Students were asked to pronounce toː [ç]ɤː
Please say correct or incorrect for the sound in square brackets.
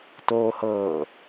incorrect